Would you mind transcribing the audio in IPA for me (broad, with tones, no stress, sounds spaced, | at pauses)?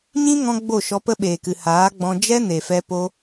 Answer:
ɲ ĩ˦ ŋ ɔ̃˧ ɡ͡b o˦˨ ʃ ɔ˧ p ə˦ ɓ eː˨ k ɨ˨ h aː˨˦ ɡ͡b ɔ̃˧ d͡ʒ ɛ˦ n e˨ f ɛ˧ p o˧